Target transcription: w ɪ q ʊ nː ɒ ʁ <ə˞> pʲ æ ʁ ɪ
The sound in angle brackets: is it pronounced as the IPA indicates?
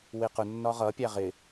no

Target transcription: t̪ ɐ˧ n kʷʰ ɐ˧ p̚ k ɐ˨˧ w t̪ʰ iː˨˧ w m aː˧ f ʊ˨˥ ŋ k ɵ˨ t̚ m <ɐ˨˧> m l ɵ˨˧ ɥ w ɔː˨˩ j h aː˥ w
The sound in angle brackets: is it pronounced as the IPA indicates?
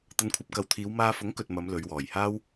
yes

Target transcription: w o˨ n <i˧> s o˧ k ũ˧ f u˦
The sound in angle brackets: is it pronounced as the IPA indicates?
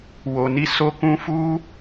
yes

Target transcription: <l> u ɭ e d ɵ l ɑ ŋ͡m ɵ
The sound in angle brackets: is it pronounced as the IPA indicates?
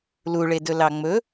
yes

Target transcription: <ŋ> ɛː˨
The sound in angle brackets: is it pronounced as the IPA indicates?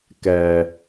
no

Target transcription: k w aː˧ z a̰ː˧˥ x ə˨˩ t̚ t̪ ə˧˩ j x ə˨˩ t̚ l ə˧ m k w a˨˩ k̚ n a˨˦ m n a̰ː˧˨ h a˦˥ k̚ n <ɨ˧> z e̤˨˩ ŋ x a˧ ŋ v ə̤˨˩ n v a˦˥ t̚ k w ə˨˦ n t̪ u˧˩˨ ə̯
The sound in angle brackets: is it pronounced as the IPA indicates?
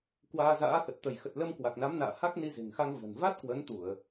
no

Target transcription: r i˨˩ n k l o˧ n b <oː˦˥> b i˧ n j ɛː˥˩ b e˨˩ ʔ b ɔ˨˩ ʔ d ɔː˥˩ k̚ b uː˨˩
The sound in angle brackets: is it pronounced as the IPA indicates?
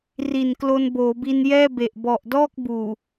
no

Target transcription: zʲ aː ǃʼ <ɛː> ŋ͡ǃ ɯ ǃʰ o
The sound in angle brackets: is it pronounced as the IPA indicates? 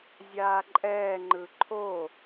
yes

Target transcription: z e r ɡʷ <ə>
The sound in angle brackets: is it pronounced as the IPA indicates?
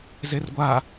no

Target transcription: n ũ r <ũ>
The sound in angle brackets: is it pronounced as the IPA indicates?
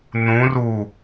no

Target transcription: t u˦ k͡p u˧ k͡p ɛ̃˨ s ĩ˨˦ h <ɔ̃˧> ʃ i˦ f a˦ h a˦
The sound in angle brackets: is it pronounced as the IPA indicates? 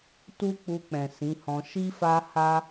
yes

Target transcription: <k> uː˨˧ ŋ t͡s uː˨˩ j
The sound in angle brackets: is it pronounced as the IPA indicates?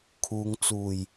no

